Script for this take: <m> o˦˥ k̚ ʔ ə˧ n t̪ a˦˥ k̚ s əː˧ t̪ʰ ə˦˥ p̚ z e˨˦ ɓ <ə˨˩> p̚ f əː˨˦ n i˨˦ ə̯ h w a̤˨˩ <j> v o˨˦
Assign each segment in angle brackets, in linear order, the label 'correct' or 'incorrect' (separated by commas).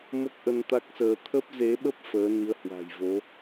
correct, incorrect, correct